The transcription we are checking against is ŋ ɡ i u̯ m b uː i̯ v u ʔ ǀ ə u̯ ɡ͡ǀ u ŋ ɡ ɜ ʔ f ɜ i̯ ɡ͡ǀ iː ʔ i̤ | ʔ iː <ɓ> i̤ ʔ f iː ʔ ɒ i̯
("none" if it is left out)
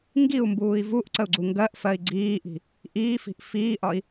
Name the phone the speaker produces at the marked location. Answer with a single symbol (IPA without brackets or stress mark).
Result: f